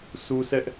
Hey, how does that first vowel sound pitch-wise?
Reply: high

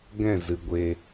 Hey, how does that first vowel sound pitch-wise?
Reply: falling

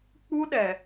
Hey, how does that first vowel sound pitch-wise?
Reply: high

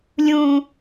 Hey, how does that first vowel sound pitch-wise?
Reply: low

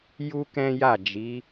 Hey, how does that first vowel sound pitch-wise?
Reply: high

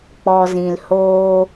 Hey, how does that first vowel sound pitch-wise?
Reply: low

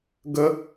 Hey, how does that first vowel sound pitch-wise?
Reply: high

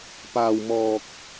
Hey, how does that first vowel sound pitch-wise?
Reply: low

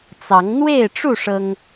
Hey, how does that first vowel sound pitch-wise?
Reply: rising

